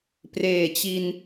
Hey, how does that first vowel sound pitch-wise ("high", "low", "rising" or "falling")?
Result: low